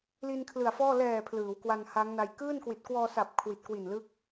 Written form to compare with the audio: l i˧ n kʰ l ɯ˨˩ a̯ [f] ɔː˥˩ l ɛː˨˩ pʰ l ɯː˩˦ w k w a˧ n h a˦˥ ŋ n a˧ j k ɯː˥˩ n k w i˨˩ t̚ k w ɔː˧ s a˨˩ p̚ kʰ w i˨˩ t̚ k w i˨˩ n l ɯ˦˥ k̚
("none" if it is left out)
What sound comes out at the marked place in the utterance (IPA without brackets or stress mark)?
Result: f